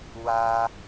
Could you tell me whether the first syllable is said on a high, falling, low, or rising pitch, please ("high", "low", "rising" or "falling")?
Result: low